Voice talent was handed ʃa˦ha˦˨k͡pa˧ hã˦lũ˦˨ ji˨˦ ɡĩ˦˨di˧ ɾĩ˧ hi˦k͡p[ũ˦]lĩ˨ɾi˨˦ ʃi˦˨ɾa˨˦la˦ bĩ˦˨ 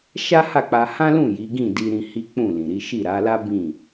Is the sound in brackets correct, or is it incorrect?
incorrect